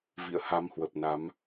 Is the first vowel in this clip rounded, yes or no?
no